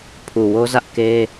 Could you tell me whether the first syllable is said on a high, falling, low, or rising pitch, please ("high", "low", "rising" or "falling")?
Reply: low